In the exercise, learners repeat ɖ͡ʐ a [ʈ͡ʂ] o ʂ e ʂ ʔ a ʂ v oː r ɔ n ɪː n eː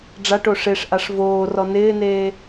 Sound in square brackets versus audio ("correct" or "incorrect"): incorrect